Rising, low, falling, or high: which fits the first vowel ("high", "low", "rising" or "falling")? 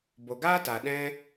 low